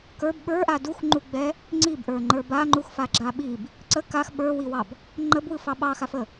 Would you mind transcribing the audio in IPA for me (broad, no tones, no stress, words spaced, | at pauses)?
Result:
kə˞b ɓə˞ʔa duxŋ͡ǃuɡ͡bɛ | ŋ͡ǀibʔə˞ŋ͡ǃə˞ baŋ͡ǃuxfaɡ͡ǁa ɓib | ǀə kax ɓə˞wiwɑb | ŋ͡ǃəbwɯfɑ ɓɑxafə